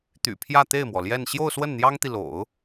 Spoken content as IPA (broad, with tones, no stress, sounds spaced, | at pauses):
t̪ y̰˨˩ pʰ j ä˥˧ t̪ e˥˩ ɪ̯ m w ɔ˩ l j ɛ˥˧ n ɕ j o˥˧ ʊ̯ s w ə˥˩ n n̪ j ɑ˥ ŋ t̪ i˨ l o̰˨˩˦ ʊ̯